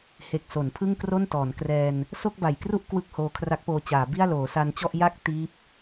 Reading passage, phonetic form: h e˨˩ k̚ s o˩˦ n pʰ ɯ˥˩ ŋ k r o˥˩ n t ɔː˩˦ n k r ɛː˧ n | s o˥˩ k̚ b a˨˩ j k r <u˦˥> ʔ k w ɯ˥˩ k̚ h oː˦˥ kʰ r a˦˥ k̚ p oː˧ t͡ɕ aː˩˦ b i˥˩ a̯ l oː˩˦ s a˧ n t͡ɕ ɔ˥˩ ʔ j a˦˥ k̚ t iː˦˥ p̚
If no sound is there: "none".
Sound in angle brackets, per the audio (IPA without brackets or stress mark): u˥˩